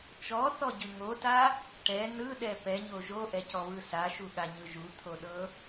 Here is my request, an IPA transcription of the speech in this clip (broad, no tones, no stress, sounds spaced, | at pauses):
t͡ʃ ɔ θ ɔ ɟ ɯ ŋ o t a | ʈ ɛ n ɯ ɗ ɛ p ɛ ɲ o ʒ o ʔ ɛ c ɔ β ɯ s a ʃ u ɠ a ɲ ɯ ʒ u t̪ʰ o ɗ ɤ